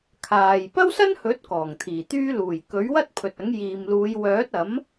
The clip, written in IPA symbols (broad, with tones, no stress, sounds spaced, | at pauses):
kʰ aː˨ j p ɐ˥ w s ɐ˥ n h ɵ˨˥ t̚ k ɔː˨˩ ŋ t̪ʰ iː˨˩ t̪ yː˥ l uː˨˩ j k ɵ˨˥ ɥ w ɐ˥ t̚ pʰ ɵ˨ t̚ ɐ˨˥ ŋ j iː˨ m l uː˨˧ j w œː˨˥ t̚ ɐ˨˥ m